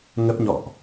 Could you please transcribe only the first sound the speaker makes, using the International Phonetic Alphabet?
ŋ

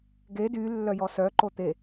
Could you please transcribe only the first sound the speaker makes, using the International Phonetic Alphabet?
ɡ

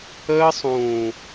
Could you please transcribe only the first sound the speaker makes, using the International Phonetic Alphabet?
əː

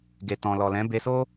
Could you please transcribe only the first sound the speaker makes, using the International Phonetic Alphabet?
ɡ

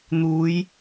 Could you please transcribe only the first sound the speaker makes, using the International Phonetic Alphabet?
n̪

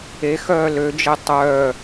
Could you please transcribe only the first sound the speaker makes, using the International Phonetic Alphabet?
e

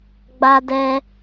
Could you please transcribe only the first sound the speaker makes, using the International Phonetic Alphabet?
ɡ͡b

